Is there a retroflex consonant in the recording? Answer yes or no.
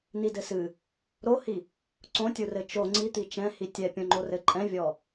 no